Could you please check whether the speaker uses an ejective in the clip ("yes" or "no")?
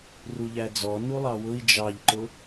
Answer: no